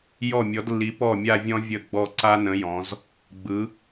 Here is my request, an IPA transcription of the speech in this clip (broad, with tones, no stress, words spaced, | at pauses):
jɔ˥˩mʲɔ˨˥dlːi˨˥ pɔ˥˩mʲa˥˧vʲɔ̃˦˥ vʲə˥˩ɡ͡bɔ˥˩ ǀa˦˥ nə̃˨˥jɔ̃˩˧z | ɡ͡bɯ˨˥